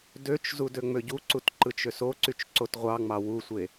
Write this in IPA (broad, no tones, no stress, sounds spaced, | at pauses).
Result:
d ø t͡ʃ z u d ø ŋ͡m ø ɟ u ǀ u t ǃ ɯ t͡ʃ ø s o ǀ y t͡ʃ ǀ o t ʁʷ ɑ ŋ͡m ɑ w u sʷ e